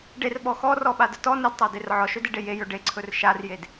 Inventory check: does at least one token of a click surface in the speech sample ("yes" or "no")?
yes